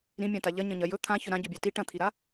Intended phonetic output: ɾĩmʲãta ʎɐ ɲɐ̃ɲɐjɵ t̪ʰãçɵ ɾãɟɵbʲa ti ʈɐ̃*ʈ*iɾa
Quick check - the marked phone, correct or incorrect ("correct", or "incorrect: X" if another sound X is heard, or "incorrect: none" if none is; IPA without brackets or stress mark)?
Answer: incorrect: t̪ʰ